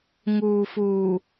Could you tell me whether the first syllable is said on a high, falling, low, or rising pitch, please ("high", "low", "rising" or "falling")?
low